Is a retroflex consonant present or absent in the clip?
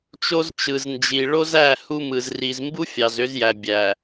present